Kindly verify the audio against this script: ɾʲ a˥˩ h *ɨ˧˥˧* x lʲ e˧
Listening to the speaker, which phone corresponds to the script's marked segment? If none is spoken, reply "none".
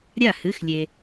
ɨ˧˥˧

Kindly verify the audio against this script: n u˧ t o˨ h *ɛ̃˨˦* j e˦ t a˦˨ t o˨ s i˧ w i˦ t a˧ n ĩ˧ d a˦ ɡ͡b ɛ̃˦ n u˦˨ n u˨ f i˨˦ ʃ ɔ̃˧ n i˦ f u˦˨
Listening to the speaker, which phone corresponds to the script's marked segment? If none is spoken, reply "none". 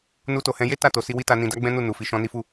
ɛ̃˨˦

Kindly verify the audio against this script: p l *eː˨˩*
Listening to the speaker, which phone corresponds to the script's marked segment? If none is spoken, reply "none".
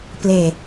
eː˨˩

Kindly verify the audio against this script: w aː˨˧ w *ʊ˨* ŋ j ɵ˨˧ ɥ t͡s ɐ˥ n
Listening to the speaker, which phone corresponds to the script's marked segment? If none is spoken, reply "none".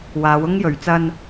ʊ˥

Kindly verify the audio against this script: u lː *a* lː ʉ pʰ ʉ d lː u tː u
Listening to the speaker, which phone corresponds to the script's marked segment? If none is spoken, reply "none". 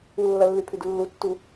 ɐ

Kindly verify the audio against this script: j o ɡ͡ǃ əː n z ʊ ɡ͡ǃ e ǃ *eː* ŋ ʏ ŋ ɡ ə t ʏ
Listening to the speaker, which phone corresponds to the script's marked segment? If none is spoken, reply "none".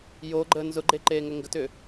eː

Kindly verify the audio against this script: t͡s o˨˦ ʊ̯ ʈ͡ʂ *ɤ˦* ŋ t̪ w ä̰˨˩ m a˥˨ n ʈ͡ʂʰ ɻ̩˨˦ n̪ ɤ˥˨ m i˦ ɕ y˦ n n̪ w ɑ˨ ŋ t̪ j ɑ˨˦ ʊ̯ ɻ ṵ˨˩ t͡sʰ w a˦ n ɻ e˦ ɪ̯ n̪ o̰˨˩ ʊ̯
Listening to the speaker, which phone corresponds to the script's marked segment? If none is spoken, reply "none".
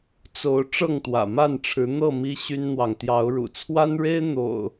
ɤ˥˨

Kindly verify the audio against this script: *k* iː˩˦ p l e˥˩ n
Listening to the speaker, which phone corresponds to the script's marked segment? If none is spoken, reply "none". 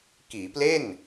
k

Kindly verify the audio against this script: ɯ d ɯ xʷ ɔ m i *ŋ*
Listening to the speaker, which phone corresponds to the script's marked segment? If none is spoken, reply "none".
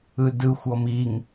ŋ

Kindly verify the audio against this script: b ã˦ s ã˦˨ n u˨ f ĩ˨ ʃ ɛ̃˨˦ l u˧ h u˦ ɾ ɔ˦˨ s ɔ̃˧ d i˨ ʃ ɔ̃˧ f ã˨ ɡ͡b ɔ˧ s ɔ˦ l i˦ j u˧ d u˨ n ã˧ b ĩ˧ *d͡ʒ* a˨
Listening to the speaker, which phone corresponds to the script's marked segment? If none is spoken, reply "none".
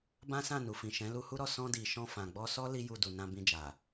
d͡ʒ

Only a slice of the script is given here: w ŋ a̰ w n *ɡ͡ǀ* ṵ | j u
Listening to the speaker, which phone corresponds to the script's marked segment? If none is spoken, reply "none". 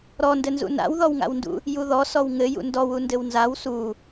d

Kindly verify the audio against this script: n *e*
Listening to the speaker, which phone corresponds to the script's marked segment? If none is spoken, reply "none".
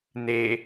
e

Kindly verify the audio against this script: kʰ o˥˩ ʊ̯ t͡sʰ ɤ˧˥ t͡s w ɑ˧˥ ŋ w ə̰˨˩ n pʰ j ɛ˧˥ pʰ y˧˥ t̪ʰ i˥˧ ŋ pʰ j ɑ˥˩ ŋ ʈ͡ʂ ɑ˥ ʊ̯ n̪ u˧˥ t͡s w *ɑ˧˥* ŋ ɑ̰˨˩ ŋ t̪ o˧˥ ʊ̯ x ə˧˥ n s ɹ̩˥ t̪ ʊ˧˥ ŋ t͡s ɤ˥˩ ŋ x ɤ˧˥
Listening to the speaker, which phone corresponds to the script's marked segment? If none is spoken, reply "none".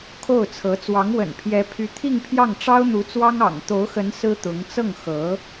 ɑ˥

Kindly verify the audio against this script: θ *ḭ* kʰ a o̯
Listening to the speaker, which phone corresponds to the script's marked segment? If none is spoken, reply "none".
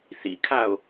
ḭ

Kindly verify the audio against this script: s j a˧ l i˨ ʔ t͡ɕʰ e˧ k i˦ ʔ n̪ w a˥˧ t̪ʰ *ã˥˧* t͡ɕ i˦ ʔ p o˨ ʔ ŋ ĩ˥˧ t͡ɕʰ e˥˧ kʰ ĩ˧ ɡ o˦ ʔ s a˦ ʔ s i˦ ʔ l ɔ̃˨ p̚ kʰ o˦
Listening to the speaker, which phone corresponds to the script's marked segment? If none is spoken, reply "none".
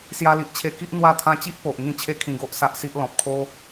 ã˧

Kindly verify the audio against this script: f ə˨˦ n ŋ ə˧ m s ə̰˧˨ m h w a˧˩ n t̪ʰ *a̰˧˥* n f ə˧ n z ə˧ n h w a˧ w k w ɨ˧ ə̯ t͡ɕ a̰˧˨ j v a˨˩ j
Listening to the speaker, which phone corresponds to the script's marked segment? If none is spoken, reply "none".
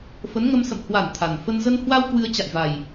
a˨˩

